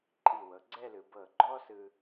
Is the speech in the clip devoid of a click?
no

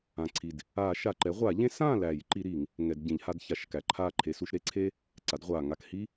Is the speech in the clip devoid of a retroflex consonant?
yes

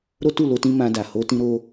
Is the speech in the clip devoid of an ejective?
yes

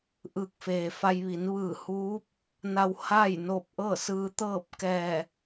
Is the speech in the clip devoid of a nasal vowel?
yes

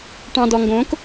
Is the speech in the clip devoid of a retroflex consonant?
no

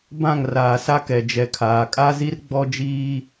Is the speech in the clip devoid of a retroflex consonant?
yes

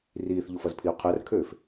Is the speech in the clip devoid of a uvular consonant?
no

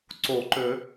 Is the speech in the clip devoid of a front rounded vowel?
no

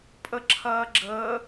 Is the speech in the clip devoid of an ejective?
no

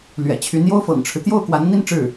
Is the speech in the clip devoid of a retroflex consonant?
no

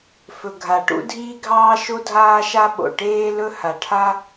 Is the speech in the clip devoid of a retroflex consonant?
no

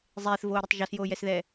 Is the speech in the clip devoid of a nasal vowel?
yes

